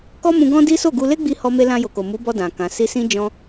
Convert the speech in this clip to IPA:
kɔ˦mũ˧ɡɔ̃˦di˦ so˦˨ɡu˧ le˦ɡ͡bi˧ hɔ˦me˦ lã˧ jo˨ko˨mu˨˦bɔ˧ dã˨kã˨ si˧sĩ˦ d͡ʒɔ̃˦

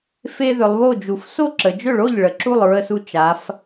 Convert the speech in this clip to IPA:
fe˦ðʏ˩˧lˠβo˥˩d͡ʒu˩˧f so˥˩ǁə˩˧d͡ʒʏ˥˩ɭo˥˩ʎ ɭə˩˧ǁu˥˩lˠ ɹə˦su˦ t͡ʃa˩˧f

